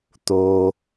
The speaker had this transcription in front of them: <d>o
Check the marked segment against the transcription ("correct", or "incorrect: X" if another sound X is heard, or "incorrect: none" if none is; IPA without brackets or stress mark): incorrect: t̪